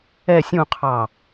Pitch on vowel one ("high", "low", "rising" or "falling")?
falling